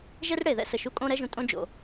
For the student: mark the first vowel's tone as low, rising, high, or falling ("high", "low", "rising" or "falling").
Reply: high